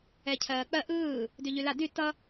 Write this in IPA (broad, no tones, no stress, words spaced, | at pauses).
ɛcʰɜːk͡pɜ ʔɯː | dyʎyla dy tʌ